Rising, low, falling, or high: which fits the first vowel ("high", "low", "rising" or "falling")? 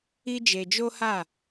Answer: high